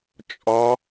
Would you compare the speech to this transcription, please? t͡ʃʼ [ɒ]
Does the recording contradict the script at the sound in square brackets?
no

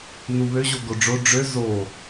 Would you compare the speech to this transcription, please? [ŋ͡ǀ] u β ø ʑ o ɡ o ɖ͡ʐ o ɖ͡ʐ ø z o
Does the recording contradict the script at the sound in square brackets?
yes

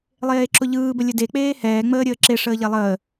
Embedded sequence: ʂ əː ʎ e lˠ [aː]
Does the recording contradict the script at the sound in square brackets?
yes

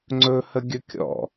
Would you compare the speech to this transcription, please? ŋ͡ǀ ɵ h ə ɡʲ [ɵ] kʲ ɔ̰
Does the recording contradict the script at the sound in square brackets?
no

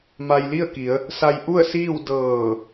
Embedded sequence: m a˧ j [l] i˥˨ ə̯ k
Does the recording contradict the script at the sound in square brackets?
no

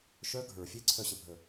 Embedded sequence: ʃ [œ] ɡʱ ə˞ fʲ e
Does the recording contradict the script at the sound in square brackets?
no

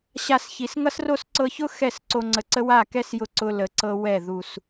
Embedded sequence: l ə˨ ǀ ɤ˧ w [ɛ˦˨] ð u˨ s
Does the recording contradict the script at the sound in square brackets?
no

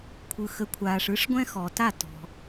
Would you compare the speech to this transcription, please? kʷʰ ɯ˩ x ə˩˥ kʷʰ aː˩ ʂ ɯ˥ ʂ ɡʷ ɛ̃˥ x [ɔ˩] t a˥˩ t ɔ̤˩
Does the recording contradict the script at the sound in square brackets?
no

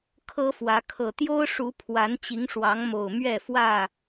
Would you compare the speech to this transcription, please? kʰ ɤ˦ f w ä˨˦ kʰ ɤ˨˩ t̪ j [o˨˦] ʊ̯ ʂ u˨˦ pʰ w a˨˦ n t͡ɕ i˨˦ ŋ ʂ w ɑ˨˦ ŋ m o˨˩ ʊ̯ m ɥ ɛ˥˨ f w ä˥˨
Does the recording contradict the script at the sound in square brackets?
yes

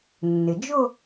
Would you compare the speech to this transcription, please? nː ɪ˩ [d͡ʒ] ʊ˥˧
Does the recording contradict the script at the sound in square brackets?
no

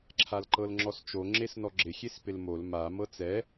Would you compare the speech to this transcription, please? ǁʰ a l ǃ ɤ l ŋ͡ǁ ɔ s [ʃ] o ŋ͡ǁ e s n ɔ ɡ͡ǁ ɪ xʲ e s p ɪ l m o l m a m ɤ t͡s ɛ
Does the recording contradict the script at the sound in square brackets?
yes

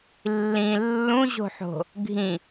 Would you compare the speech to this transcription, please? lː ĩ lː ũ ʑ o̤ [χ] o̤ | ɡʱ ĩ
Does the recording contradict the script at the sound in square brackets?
yes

